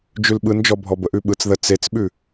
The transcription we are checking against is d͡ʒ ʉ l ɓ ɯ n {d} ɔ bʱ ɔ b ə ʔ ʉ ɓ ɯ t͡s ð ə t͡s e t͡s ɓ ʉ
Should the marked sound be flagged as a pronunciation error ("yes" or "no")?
yes